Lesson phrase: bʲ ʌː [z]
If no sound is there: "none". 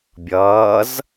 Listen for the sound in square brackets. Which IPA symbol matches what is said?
z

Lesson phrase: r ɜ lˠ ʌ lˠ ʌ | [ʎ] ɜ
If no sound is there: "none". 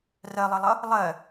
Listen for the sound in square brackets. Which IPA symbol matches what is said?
lˠ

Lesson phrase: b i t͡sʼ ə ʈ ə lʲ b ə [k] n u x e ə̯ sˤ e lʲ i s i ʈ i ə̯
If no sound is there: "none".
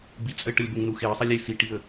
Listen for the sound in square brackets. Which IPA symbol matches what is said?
ŋ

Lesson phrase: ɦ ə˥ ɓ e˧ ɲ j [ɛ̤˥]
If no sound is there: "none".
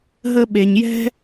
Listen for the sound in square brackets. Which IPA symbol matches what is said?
ɛ̤˥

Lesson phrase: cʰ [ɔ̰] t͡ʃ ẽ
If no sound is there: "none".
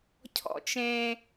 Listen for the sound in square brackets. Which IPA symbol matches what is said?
ɔ̰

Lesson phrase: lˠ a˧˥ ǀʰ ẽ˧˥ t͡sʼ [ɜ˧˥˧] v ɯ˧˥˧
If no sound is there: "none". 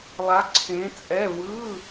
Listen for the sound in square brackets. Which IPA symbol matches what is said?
ɛ˧˥˧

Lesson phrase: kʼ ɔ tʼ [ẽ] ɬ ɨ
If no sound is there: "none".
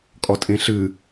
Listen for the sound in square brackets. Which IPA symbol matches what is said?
ẽ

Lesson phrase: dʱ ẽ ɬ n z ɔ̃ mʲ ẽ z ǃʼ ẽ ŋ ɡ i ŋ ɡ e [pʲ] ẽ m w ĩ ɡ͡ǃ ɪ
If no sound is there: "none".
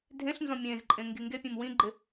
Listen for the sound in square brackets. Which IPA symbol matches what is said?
pʲ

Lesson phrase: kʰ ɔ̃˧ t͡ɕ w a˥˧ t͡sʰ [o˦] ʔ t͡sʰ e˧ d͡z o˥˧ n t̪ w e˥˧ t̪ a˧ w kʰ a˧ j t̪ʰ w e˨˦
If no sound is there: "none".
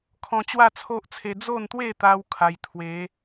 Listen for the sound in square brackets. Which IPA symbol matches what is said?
o˦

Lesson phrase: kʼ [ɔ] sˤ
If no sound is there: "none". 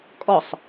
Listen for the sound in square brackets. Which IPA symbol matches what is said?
ɔ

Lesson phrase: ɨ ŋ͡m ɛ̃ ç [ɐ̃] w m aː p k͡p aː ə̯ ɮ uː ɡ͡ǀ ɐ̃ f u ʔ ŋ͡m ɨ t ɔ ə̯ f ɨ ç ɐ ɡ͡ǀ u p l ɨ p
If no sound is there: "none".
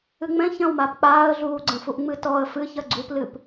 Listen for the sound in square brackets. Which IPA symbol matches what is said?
ɐ̃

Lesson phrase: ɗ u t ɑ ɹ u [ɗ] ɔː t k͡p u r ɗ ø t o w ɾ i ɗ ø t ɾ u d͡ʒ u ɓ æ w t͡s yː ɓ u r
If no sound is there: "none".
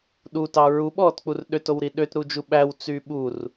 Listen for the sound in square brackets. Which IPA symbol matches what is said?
ɓ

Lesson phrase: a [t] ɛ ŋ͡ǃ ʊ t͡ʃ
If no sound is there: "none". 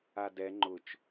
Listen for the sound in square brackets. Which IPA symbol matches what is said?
d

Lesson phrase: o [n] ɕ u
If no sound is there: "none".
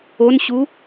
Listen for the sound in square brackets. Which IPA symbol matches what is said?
n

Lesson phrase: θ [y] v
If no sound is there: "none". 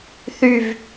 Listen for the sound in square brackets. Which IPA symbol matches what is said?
y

